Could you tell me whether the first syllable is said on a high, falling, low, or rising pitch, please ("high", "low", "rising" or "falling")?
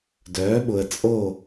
rising